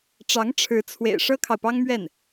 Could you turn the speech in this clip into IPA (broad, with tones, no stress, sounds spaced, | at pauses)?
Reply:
ʈ͡ʂ ɑ˧˥ ŋ ʈ͡ʂʰ ɻ̩˧˥ t͡sʰ w ḛ˨˩ ɪ̯ ʂ ɤ˥ kʰ ɑ˨ ʊ̯ p ɑ˥ ŋ m ɥ ɛ˥˩ n